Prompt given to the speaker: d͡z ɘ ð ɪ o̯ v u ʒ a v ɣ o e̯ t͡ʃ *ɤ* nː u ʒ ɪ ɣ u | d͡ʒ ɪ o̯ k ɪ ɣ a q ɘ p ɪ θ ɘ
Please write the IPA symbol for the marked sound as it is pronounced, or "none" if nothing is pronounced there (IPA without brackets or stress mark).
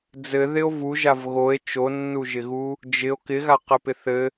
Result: o